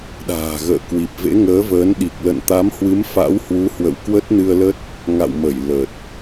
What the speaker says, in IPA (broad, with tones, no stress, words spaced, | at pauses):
ɗa̤ː˨˩ɣə̰ː˧˨ kwi˨˩p̚vḛ˧˥ŋəː˨˦vəː˨˦n ɗi˨˩k̚ lə̰˧˨nt̪a˨˦mhwɨ˨˦m fa̰˧˥whwu˨˦hwə̰˧˨w kwə˦˥t̚nɨ˧ə̯lə˦˥t̚ | ŋa̰˧˨wmə˧˩j lə˨˩t̚